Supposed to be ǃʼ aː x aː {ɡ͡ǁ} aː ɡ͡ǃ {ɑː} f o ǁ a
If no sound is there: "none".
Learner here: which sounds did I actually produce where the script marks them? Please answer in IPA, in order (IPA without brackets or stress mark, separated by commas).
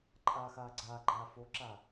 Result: ɡ͡ǀ, aː